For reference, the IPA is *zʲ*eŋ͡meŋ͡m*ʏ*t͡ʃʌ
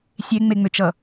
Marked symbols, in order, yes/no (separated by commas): no, yes